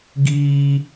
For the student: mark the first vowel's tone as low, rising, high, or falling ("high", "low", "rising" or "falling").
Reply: high